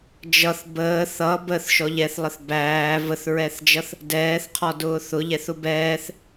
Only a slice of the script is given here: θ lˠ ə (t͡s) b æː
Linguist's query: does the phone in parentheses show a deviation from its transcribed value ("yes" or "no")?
yes